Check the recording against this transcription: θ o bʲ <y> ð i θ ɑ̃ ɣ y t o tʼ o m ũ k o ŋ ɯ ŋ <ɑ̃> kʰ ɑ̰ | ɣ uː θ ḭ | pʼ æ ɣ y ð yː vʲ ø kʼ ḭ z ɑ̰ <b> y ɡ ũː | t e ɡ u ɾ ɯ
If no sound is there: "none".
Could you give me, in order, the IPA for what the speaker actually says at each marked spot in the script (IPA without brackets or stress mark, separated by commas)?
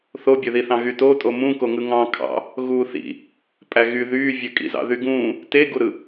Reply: ø, ɑ̃, ð